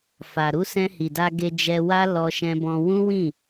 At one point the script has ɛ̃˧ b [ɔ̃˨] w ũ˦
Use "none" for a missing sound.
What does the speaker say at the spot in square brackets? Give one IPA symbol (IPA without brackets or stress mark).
ɔ̃˧